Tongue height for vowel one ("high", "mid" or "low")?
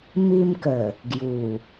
high